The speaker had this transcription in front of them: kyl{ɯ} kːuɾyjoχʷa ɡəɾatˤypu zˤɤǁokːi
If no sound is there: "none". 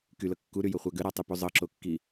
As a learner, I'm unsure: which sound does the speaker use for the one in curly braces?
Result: ɤ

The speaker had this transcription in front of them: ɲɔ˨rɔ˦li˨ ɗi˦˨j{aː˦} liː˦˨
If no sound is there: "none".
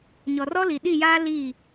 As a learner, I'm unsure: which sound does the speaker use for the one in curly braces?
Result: aː˦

